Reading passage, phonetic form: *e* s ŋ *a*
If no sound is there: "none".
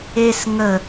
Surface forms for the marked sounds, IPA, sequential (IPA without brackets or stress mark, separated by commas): e, ə